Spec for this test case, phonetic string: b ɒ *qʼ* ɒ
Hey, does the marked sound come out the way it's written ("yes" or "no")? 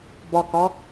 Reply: no